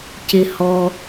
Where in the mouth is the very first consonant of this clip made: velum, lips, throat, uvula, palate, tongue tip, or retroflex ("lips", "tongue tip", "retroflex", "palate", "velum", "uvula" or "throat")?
palate